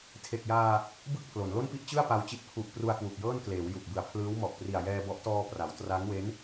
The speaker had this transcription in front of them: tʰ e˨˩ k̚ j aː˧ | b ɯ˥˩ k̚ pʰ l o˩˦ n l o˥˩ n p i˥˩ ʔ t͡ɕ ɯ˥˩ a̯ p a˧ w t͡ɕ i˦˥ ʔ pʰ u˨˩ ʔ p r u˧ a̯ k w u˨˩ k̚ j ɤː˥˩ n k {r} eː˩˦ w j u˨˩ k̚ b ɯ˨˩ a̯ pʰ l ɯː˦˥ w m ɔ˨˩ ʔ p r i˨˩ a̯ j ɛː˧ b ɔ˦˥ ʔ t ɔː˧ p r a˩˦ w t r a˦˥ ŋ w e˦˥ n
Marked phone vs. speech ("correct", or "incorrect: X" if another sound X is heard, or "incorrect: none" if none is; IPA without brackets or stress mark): incorrect: l